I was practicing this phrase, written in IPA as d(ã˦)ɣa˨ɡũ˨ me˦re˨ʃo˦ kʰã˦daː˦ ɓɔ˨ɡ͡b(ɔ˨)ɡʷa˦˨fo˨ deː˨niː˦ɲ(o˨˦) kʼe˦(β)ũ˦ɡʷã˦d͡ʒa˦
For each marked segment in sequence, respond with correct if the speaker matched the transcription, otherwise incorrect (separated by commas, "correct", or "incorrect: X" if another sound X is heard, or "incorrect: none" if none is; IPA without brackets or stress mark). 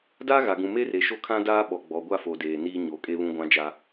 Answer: incorrect: a˦, correct, correct, correct